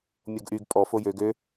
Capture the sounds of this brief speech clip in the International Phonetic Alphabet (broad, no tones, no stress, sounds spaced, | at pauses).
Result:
mʲ o ɡ ʔ y ɡ pʼ ɔ f o j ø ɡ ø